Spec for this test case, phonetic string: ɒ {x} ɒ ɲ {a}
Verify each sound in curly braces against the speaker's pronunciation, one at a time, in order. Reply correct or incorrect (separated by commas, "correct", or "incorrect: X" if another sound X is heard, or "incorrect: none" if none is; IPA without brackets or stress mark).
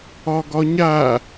incorrect: ɡ, correct